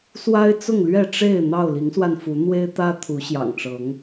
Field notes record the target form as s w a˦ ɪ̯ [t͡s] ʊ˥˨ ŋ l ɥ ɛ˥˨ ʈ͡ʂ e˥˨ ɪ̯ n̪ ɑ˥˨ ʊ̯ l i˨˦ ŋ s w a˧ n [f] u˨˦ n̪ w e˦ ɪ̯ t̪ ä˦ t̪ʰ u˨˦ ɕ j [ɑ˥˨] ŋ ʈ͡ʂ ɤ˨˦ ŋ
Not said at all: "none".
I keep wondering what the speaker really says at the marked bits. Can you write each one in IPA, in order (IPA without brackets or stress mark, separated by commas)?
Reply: t͡s, f, ɑ̰˨˩